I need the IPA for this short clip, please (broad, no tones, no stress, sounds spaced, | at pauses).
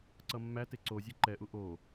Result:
ǀ ʌ mː æ t e ǀ o zʲ e ǃ ɛ ʔ u ʔ o